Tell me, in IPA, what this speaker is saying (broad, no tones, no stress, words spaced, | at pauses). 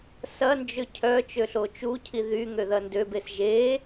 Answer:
sɐnd͡ʒø cʰœ t͡ʃøɬot͡ʃucʰi ðyŋø ðɐndøbes ʒe